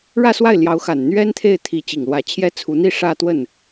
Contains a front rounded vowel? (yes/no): no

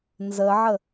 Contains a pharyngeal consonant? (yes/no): yes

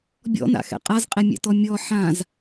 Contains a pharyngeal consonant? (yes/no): yes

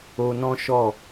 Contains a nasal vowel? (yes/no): yes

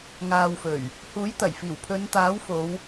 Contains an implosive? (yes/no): no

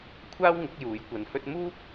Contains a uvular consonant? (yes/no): no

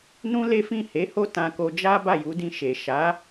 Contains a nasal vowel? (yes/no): yes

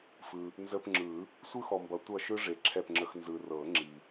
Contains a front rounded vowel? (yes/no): no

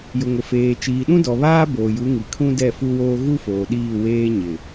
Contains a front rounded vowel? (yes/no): no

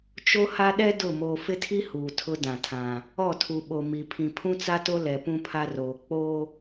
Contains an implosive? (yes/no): yes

